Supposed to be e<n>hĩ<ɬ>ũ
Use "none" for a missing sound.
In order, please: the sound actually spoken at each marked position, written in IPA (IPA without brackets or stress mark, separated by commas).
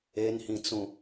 n, t͡s